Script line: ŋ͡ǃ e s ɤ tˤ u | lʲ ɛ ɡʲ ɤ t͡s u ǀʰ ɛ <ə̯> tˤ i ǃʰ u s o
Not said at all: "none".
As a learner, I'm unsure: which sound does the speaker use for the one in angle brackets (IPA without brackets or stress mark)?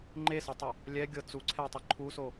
ə̯